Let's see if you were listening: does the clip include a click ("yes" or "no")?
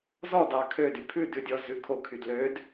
no